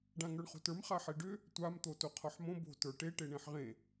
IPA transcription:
ɖ ã ŋ ə˞ ɳ χ o̤ t ə˞ m χ a ħ e ɖ ʏ | tʷ a m t̪ o t o qʰ ɒ ħ m õ b o̤ t ə˞ ʈ e ʈ e ɳ ẽ ħ ʁ ẽ

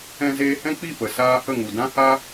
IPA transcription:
ɛ̃˧ z eː˧ h ɛ̃˦ k͡p i˦˨ p ə˨ s aː˧ h ə˦˨ ŋ u˨ d ã˦ h a˦

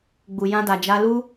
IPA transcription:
ɡ͡b u˨ j ã˧ d a˨ d͡ʒ a˧ l u˦

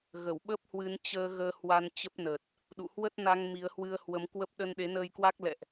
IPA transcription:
ɣ ə˧˩ w ɓ ə˦˥ p̚ h w ɨ˨˦ n t͡ɕ əː˧ ɣ əː˧ h w a˧ n t͡ɕ ə˦˥ p̚ n ə˨˩ t̚ | ɗ ṵ˧˨ h w ə˦˥ t̚ n a˧ ŋ m i˨˦ ə̯ h w ɨ˧ ə̯ h w ə˨˦ m k w ə˦˥ p̚ ɗ ə˧ n ɗ e˨˦ n əː˧ j k w a˦˥ k̚ l ɛ̰˧˨ ʔ

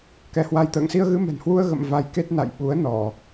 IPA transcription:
k ɛ˨˦ h w a˧ j t̪ ə̰ː˧˨ ŋ s i˧ ə̯ ɣ ɨ˧ m ɛ̤˨˩ n h w u˧ ə̯ ɣ ə̰˧˨ m v a˧ j k e˦˥ t̚ n a̰˧˨ j ɓ u˨˦ ə̯ n ɔ˧˩˨

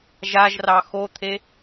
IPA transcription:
ʒ a ʒ r ɑ x o t̪ʰ e

